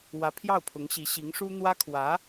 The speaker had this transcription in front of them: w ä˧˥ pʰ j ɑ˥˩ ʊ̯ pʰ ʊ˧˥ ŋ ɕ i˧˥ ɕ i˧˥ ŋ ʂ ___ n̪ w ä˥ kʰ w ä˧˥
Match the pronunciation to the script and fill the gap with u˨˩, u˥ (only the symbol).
u˥